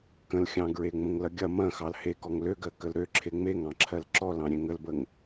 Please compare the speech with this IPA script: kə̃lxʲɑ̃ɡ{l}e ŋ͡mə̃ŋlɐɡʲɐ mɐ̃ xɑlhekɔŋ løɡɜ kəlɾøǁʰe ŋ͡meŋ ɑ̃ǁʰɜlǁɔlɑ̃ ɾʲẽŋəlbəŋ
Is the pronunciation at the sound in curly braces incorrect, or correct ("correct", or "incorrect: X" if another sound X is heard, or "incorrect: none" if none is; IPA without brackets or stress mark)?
incorrect: ɹ